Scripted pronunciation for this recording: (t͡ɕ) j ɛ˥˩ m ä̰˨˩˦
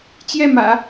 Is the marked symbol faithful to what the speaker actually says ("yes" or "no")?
yes